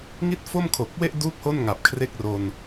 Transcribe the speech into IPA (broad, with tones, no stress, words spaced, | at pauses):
ŋi˥˩t̚fo˥˩mkʰo˨˩k̚we˥˩ʔ du˥˩k̚ho˥˩n ŋa˨˩p̚kʰre˥˩k̚ro˧n